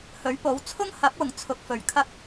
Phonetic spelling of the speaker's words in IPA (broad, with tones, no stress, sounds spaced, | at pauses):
h ɵ˨˥ ɥ p o˨˥ w t͡sʰ ʊ˥ ŋ h ɐ˨˥ p̚ w ʊ˨˩ ŋ t͡sʰ ʊ˨˥ k̚ f ɵ˨˩ ɥ kʰ ɐ˥ k̚